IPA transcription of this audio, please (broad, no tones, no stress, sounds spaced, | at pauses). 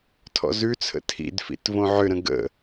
tʰ ɔ̰ z ʉ t͡sʰ ə̰ tʰ ḭ d f ḭ t v õ ʕ ʏ ɾ ə̃ ɡ ə̰